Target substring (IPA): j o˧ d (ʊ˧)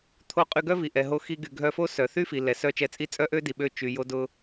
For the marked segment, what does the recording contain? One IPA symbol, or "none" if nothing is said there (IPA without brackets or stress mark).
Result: ʊ˧